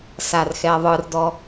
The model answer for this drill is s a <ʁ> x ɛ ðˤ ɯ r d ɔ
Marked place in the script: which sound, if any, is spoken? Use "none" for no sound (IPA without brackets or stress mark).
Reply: r